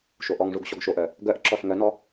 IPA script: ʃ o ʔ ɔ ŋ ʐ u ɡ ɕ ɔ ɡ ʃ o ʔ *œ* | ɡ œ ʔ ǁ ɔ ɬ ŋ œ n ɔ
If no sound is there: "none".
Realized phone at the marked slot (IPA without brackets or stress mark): œ